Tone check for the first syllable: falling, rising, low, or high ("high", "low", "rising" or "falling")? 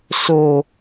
low